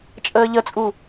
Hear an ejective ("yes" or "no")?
yes